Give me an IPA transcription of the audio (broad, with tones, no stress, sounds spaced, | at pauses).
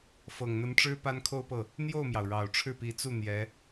f ɤ˨˩ ŋ n̪ ə˧˥ n ʈ͡ʂ ɻ̩˥ p a˥ n kʰ o˥˧ ʊ̯ p ɤ˥˩ | n̪ j o˥˩ ʊ̯ m j ɑ˩ ʊ̯ ɻ ɑ˨˩ ʊ̯ ʈ͡ʂʰ ɻ̩˥˩ p i˧˥ t͡s u˥˩ n̪ j ɛ˧˥